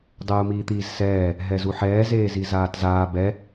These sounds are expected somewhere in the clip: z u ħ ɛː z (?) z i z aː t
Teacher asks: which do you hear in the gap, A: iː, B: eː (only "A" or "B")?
B